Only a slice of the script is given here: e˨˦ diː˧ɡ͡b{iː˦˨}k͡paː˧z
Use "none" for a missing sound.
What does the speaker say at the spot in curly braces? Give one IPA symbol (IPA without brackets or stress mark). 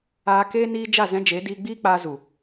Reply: iː˦